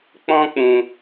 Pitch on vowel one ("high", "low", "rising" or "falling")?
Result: high